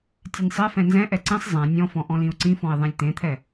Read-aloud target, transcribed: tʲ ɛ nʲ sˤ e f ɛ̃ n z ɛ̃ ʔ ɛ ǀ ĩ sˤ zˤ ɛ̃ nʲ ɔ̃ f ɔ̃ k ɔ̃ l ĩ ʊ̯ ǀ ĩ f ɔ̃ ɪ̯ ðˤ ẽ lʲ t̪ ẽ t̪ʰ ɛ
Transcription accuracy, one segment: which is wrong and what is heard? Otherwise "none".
k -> ʔ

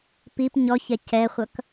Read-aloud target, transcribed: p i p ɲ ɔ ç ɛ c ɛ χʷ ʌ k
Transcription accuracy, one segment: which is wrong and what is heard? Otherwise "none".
none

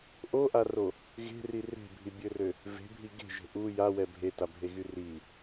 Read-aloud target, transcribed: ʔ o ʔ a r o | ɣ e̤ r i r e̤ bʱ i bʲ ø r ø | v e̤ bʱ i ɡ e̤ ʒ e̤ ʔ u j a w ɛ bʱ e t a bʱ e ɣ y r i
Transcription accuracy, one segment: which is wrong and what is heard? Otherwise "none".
none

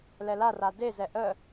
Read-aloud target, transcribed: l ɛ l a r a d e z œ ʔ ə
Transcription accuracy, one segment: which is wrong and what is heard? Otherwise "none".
œ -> ɛ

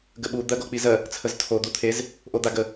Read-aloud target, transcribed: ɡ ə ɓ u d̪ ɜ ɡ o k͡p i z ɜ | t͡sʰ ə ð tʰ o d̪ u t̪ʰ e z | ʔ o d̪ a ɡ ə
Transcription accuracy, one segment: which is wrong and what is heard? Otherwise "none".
ð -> z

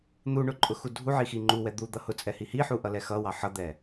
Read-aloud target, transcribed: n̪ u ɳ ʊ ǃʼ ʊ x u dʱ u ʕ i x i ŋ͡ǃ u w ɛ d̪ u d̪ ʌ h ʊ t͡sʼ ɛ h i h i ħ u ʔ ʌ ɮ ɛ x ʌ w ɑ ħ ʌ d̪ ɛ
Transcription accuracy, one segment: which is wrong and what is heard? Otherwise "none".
ɮ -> l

